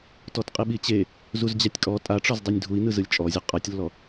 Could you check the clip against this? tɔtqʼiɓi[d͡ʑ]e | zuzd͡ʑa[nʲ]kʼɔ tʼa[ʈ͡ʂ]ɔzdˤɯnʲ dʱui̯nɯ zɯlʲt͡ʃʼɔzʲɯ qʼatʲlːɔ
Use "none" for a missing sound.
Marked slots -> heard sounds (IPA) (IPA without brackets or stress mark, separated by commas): t͡ɕ, tʲ, ʈ͡ʂ